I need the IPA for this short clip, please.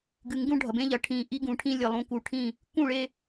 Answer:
ɡ ɨ˨ ŋ ɡ ũ˦ ɖʱ ɐ˨ b ẽ˦ ʎ ɐ˨ ʈʰ ĩ˨˦ ʔ i˦ ɡ ũ˨ ʈʰ ĩ˦ lʲ e˨ lˠ ũ˨ k u˨ ʈʰ ĩ˦˨ | k ũ˦˨ ɭ e˦

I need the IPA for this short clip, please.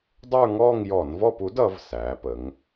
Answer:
dˤ ə˞˥˧ ŋ ɔː˥˧ ŋ j ɔ˧˩˧ n v ɔ˥˧ p u˩˥ d ʌ˩˧ v s æː˩˧ p ə˩˧ ŋ

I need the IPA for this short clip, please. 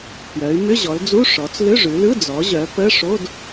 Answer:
p j œ˩˧ y̯ m ʏ˧˥˧ ʑ ɔ˩˧ l d͡z u˧˥˧ ʂ ɔ˩˧ t͡s l ʏ˧˥˧ ʐ ʉ˩˧ l ɯ˧˥˧ d͡z ɔ˩˧ ʑ œ˩˧ p ə˧˥˧ ʂ o˧˥˧ d

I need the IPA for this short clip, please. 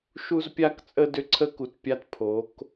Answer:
ʃ u˦ z pʲ a˦ k t͡sʼ ə˦ d ʏ˦ ǀʰ ə˦ k u˨ t pʲ a˦ t pʰ o˨˦ k

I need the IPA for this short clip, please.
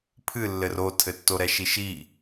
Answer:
pʰ ɨ lː ɘ r o tʰ ɘ tː o ɾ ɛ ʃ i ʃ i

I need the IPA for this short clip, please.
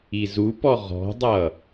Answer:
i z u p ɔ ʁ ɔ̤ dˤ ʌ

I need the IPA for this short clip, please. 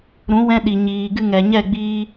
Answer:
ɾ ũ˨˦ w ɛ̃˧ ɗ i˨ ɲ iː˨ ɡ ɨ˧ ŋ ɛ˨ ɲ ɛ˦˨ ɡ͡b iː˦

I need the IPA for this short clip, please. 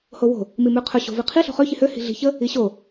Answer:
h o w o̤ | m i m ʉ qʰ ɵ ɕ o̤ v i qʰ i ɬ o̤ χ ø ç i h ø h i̤ ɮ i̤ ç ə | i ɕ o

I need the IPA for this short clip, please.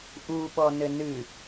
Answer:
ʔ u ɓ ɔ n ɘ n ɨ

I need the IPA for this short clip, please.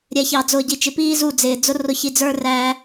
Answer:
ɾʲ ɛ˧ ç ɑ˨ d͡z ʊː˨ ɟ i˨ t͡ʃ ɪ˨ p iː˦ z u˦˨ d͡z ɪː˨ d͡z ʊ˦ r ʊ˧ ç i˧ d͡z ə˞˦ r æ˦

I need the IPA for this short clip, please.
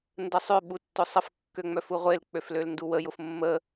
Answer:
n d ə sˤ ʏ ɓ u tː ʊ sˤ ə f kː ø ŋ͡m œ f u ʁʷ e l k͡p ø f l ø l n d u w ə j ʊ f mː ə

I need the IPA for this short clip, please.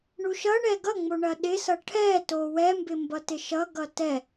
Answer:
ɳ u ʃ ʌ ɳ ɛ ɡ ʌ ŋ͡m o ɳ ɐ ɗ ɪ s ʌ ʈʰ ɛ t o w ɛ m b ɪ m b ʌ t ɪ ʃ ʌ ɡ ʌ t ɛ

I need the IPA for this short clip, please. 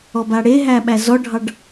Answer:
ɔ b a ɽ e ɦ æ ɓ æ z ɔ ɖʱ ɑ ɖ

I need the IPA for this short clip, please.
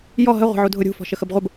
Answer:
j ɔ ɦ ə ʁʷ ə̤ ʕ u dʱ ʊ ɾʲ ṳ f ɔ̤ ʃ ə x ə b ʁʷ ə b

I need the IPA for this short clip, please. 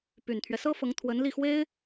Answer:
p y˨˩ n t̪ʰ ɥ ɛ˦ s ɤ˥ f ɤ˧˥ ŋ t̪ʰ w ə˧˥ n l i˥˩ x w e˥ ɪ̯

